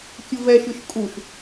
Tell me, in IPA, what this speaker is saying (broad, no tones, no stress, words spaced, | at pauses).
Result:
kʲɯvɛʃɯʃ kʼuʃ